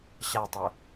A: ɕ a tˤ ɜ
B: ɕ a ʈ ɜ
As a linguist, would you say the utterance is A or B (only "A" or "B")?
A